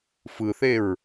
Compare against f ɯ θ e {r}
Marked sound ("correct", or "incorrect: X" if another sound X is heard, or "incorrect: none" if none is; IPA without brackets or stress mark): incorrect: ɹ